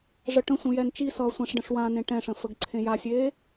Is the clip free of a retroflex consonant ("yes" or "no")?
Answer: no